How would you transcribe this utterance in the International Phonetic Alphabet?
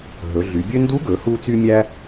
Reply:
ɦ ɵ˩˧ ɮ y˩˧ bʲ ø˥ n d u˧˥ ɡ ɵ˩˧ h u˧ t͡s y˧ mʲ æ˥

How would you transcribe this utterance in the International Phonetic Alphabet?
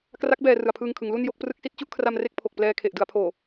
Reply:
k r a˦˥ k̚ b ɛː˧ r ɯ˨˩ a̯ pʰ ɯː˧ ŋ kʰ ɯ˩˦ ŋ l u˥˩ n j o˥˩ k̚ p r ɯ˦˥ k̚ s i˦˥ t̚ t͡ɕ u˥˩ ʔ kʰ r a˧ m r e˥˩ k̚ pʰ o˨˩ k̚ p l ɛː˧ kʰ e˨˩ ʔ d ɯ˩˦ a̯ pʰ oː˨˩

